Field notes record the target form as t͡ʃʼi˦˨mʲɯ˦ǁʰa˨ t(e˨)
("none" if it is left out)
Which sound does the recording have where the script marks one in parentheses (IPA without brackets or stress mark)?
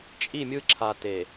e˨